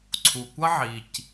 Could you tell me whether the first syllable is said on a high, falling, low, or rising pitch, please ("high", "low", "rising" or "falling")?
low